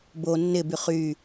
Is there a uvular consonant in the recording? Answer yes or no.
yes